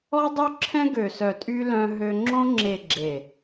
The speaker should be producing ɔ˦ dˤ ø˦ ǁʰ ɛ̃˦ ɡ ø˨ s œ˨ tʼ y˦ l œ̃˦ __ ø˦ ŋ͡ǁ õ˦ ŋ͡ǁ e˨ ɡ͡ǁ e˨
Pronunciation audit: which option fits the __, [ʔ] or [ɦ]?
ɦ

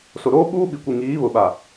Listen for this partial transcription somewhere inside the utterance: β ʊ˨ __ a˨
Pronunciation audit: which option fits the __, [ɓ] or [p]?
ɓ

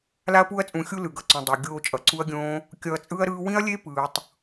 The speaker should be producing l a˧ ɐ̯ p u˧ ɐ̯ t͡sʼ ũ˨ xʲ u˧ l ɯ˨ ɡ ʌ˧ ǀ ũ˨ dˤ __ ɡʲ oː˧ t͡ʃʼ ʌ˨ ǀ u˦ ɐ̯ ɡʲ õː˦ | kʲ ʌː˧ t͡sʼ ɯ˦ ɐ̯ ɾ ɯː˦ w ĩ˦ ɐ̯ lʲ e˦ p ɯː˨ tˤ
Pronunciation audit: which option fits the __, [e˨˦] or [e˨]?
e˨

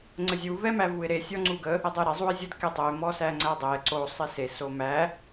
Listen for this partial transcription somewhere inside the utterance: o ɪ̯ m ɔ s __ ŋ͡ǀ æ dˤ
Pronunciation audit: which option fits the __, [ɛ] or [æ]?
æ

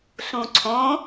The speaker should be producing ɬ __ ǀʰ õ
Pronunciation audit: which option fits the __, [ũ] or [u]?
ũ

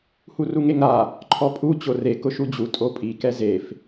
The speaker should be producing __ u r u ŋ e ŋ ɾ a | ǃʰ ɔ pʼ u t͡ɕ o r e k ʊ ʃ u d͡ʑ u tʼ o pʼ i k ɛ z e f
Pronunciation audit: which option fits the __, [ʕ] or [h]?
h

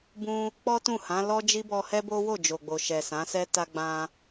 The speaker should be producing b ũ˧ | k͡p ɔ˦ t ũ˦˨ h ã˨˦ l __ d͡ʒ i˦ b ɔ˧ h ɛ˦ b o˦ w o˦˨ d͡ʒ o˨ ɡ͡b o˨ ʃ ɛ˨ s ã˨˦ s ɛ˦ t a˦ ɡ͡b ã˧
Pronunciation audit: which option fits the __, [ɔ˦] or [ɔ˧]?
ɔ˦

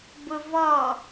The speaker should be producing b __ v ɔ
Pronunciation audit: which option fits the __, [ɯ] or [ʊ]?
ʊ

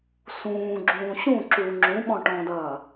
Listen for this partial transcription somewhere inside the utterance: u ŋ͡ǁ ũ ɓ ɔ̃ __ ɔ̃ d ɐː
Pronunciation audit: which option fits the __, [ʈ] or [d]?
ʈ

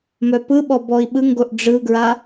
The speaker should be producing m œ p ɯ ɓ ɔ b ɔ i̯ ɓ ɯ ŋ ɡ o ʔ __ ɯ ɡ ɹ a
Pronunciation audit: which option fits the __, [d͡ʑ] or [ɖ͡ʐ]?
ɖ͡ʐ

